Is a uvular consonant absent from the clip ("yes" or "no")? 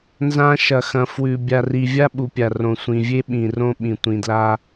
yes